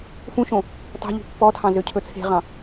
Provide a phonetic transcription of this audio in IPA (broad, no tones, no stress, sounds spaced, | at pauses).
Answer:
f ũ ʃ õ | t ɑ̤ ʎ ṳ pː ɔ tʰ ɑ̃ z ø cʰ ɵ t͡sʰ e̤ ʁ ɑ̃